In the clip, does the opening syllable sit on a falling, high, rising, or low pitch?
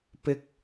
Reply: high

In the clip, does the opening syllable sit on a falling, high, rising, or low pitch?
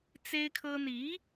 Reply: high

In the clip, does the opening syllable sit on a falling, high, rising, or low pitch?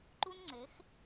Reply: high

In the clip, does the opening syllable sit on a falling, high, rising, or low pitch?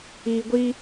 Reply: low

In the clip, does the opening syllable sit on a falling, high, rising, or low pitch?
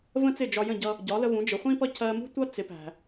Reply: high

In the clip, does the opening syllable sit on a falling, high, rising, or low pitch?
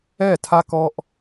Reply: falling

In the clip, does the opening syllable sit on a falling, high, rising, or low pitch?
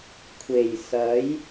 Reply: low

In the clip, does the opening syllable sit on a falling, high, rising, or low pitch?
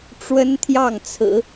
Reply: high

